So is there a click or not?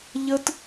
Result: no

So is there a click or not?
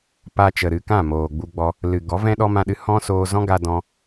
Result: no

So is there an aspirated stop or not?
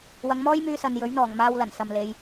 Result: no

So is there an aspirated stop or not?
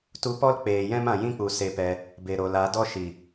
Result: no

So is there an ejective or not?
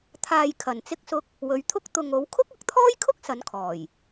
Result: no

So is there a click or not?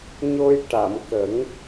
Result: no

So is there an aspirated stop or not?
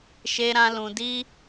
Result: no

